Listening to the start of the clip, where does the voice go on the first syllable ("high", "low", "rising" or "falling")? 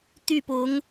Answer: falling